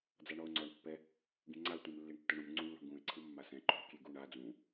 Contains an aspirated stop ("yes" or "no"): yes